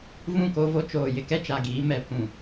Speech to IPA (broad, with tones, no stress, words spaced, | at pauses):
vũ˦˨ko˦vo˦ t͡ʃoː˨ jɪ˦kɛ˦ t͡ʃa˨ɡiː˨˦ mɛ˨pʰũ˨